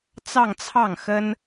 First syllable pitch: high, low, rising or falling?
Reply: falling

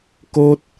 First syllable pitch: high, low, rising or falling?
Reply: high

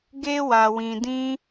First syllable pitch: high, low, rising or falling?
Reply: high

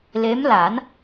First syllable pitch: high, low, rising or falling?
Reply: rising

